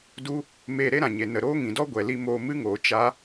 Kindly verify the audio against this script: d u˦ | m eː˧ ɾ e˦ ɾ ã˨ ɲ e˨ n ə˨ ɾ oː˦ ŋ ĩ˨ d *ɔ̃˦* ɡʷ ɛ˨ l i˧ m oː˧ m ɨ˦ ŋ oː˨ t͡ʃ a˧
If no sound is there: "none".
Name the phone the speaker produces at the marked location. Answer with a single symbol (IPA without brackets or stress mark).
ɔ˦